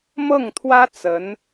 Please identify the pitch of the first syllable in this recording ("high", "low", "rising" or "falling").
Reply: falling